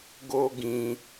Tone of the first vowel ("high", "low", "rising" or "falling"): high